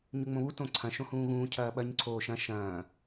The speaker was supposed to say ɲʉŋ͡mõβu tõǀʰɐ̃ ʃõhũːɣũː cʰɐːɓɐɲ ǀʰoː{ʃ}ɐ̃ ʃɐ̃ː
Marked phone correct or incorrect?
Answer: correct